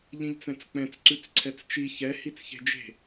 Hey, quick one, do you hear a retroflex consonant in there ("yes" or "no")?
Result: no